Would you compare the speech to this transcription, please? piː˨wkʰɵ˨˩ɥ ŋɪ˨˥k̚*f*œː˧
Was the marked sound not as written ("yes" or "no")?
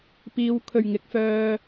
no